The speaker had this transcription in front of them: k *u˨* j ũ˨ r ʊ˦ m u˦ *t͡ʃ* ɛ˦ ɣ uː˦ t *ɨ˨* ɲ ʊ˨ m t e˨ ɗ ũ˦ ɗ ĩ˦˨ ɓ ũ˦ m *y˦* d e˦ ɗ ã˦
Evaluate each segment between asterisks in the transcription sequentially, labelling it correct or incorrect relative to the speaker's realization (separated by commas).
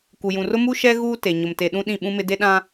correct, incorrect, incorrect, incorrect